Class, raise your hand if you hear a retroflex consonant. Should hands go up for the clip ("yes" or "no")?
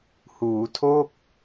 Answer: no